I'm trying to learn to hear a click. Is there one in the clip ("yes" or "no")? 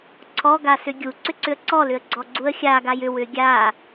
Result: yes